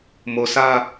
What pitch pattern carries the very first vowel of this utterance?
low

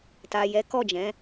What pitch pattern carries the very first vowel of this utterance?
low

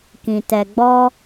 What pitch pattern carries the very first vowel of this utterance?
low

